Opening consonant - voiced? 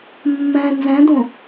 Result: yes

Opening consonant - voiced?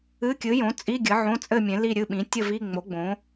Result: no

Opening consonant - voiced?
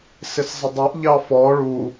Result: no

